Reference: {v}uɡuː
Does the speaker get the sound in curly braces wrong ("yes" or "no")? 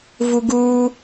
no